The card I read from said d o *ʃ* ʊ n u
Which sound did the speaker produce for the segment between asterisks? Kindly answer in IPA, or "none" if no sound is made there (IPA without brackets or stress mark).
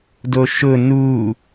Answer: ʃ